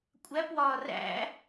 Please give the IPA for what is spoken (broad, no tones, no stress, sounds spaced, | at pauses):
kʷʼ æ p w ɒː r æ̰